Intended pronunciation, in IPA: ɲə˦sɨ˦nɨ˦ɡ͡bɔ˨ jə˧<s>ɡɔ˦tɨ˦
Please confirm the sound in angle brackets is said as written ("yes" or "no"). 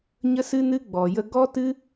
no